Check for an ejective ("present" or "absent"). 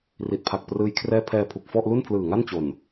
absent